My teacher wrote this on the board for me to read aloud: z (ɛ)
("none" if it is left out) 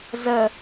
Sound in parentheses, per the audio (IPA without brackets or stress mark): ə